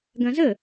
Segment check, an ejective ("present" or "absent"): absent